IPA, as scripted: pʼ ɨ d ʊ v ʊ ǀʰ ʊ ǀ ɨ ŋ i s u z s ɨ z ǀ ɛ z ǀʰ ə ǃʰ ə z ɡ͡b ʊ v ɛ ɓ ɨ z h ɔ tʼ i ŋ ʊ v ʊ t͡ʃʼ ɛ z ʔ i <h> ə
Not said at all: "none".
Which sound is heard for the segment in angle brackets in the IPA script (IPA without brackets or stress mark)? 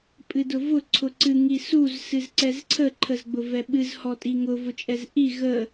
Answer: ɣ